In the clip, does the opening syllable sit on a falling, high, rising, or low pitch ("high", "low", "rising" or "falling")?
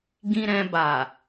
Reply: low